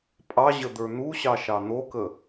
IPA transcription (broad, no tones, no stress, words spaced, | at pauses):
pʼɑ ʑəd̪ə˞n̪uɕɑ ʃɑn̪okə